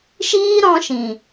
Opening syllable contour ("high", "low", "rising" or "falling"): high